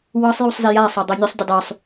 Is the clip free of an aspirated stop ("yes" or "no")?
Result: yes